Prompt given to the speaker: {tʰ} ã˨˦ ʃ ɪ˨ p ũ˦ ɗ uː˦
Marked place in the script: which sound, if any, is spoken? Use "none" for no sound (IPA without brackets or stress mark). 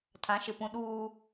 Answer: tʰ